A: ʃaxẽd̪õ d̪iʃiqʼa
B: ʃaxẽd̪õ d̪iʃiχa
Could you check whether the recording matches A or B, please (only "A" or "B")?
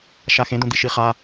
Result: B